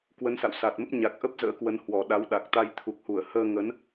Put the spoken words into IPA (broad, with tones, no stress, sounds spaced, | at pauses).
k w ə˨˦ n s a̰˧˨ w s a˨˩ t̚ m ə˦˥ p̚ ɲ a˨˩ k̚ ʔ ə˦˥ p̚ z ə̰ː˧˥ k w ə˨˦ n h w ɔ˨˩ ɗ a˨˦ w ɗ a˨˩ k̚ t̪ a˧ j t̪ʰ u˨˩ k̚ h u˧˩ ə̯ h əː˧ ŋ ə˨˦ n